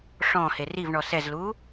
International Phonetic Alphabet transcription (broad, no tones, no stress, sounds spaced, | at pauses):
ʂ ɔ̃ h e r i v ɳ ɔ s ɛ z l u